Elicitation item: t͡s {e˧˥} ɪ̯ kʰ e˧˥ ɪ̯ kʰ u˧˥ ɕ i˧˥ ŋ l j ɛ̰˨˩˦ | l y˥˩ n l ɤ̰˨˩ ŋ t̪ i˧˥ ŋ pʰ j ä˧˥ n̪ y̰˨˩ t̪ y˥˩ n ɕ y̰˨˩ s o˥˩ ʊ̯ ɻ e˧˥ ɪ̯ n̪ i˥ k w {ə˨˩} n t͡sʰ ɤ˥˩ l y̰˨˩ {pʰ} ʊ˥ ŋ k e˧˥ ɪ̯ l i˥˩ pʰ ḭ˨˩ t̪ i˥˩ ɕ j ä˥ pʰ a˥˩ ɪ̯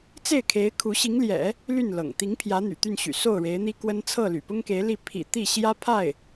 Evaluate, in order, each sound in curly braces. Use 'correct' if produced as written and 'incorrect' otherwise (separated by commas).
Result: incorrect, incorrect, incorrect